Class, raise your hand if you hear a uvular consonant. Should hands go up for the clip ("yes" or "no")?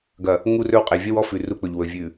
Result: yes